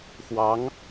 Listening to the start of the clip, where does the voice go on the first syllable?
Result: rising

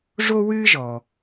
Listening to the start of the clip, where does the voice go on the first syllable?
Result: high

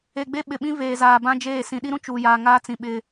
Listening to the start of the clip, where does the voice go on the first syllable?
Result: low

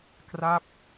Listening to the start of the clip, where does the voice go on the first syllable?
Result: falling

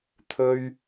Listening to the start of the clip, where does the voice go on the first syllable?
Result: high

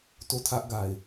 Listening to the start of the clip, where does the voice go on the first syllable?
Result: falling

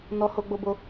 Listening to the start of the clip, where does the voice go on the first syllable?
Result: high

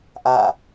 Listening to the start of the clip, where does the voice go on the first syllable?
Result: falling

